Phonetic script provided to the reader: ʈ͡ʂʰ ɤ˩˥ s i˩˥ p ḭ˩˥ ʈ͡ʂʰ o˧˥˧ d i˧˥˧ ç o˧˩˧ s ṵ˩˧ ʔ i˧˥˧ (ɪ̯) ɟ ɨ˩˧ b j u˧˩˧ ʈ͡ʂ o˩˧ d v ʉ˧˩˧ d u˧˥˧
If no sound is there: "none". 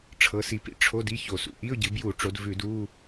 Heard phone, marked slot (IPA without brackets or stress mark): ʊ̯